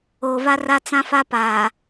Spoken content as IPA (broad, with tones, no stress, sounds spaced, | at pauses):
oː˨ v a˦ r a˦ t͡s ã˦ f a˦ p aː˨